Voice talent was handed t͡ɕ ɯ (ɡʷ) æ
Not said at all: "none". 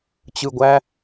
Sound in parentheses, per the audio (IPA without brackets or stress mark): ɡʷ